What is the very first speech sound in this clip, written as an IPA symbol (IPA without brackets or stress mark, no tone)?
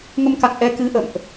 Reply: ŋ